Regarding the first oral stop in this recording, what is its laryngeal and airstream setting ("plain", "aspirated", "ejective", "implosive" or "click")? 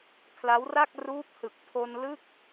aspirated